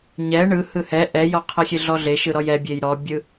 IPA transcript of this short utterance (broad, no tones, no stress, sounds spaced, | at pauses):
ɲ ɛ ɳ ɯ h ɯ h ɛ ʔ ɛ j ɔ qʰ ɛ xʲ e ɮ ɔ ɮ e ʃ ɯ ɾ ɔ j ɛ bʲ e j ɾ ɔ bʲ ɯ